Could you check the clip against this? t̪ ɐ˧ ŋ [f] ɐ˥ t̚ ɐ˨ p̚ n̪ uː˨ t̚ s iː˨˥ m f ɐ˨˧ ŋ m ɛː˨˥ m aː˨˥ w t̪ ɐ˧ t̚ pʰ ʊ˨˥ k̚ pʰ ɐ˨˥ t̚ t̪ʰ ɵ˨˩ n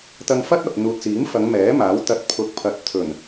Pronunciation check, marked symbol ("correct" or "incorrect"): correct